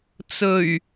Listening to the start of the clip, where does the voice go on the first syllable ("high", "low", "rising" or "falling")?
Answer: low